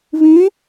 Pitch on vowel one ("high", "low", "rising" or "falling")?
rising